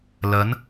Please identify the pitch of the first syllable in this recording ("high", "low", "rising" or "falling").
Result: rising